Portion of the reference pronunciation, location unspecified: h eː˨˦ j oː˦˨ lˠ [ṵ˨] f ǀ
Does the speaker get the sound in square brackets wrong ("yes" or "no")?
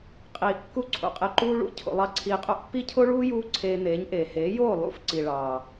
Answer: yes